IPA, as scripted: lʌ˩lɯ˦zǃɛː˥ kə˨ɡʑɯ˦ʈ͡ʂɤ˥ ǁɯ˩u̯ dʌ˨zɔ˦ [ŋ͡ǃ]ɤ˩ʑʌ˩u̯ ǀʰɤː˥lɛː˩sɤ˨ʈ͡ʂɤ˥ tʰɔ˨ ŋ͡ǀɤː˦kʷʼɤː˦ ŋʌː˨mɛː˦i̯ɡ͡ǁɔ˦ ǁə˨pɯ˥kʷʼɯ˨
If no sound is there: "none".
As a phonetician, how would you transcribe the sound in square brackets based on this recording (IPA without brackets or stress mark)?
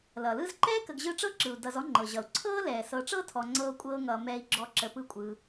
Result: ŋ͡ǃ